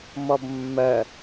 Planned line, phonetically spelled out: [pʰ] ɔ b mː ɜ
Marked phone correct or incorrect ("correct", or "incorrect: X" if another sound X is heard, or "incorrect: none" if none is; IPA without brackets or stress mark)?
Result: incorrect: m